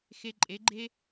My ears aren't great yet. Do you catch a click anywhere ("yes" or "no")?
yes